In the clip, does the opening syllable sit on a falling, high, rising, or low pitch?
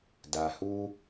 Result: low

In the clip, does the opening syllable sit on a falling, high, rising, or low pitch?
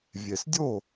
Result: low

